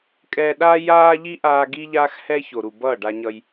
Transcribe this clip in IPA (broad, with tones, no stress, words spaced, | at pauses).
kʼɛː˧ ɗaː˦jaː˦ʎi˦ʔaː˧ ɡi˦ʎaː˦x hɛ˦ço˨ɾu˨ bʌː˦˨ɖa˧ɲʌ˧j